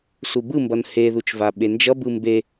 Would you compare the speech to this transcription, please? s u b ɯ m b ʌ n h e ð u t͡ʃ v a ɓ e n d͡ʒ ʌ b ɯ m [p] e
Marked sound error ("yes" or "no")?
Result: yes